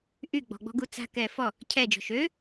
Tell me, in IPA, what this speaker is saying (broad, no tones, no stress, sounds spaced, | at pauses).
ʔ y ɡ͡b ɔ̤ ɡ͡b ɔ̤ ɡ u t͡s a̤ k ɛː f ɔ | cʰ ɛ d͡ʒ ɔ̤ ʃ ø